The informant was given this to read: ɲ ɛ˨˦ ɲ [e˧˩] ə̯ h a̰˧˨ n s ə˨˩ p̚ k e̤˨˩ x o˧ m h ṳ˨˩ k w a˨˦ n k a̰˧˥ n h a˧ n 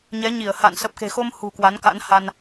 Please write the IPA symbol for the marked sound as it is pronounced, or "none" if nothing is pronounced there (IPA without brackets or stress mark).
i˧˩